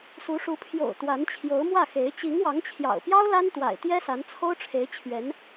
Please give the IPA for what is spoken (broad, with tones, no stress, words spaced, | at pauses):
su˧˥ʂu˧˥ pʰjo̰˨˩ʊ̯ t̪wa˧˥nt͡ɕʰjo˧˥ʊ̯mwä˥˩xe˧˥ɪ̯ t͡ɕi˧˥ŋwɑ˧˥ŋt͡ɕʰjɑ̰˨˩ʊ̯pjɑ˥ʊ̯ la˥nt̪wa̰˨˩ɪ̯t̪jɛ˥sa˧˥n t͡sʰo˥ʊ̯ʈ͡ʂʰe˧˥ɪ̯t͡ɕʰɥɛ˧˥n